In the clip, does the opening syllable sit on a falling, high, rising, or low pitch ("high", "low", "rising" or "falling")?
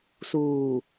low